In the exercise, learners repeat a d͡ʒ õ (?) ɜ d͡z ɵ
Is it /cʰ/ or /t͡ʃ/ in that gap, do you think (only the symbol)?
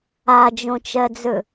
t͡ʃ